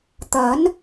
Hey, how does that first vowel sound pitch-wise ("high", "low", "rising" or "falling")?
rising